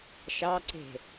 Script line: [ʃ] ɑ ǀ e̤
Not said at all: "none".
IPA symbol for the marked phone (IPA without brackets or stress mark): ʃ